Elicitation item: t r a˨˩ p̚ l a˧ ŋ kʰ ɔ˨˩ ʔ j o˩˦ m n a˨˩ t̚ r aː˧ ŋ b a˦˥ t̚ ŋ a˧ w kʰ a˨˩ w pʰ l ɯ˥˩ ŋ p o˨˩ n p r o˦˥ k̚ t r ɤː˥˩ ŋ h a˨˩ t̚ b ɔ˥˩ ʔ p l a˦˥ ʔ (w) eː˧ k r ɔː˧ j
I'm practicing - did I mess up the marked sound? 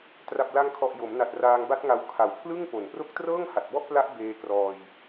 yes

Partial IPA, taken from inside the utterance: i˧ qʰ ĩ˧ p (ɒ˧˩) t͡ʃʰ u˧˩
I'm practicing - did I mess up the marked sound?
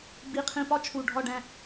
yes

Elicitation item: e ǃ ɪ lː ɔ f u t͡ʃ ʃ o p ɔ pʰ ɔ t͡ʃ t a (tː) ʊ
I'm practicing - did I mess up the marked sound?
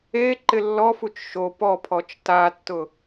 no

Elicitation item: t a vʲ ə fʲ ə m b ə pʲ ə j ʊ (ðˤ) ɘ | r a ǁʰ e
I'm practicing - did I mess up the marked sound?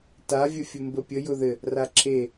yes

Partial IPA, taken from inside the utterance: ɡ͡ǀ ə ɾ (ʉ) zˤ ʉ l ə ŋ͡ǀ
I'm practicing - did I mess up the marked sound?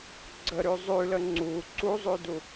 no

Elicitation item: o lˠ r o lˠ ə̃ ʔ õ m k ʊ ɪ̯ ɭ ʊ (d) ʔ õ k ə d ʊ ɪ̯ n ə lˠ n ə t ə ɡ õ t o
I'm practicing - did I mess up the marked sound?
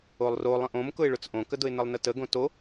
yes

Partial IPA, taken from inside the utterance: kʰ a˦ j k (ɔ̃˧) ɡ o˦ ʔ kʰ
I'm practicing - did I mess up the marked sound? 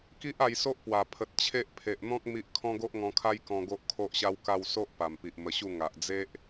no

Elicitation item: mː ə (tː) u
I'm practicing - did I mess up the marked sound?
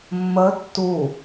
no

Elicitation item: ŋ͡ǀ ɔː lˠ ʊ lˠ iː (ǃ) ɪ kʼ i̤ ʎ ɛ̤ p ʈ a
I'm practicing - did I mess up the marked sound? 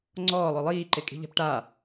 no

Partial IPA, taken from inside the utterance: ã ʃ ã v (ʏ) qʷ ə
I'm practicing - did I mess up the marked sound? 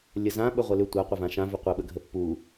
no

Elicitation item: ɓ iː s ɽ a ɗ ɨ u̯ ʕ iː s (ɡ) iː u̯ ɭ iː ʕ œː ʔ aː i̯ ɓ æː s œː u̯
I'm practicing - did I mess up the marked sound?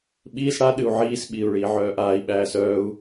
yes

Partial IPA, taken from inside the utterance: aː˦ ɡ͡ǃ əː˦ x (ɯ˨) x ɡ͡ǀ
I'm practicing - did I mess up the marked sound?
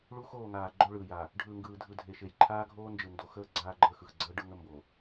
no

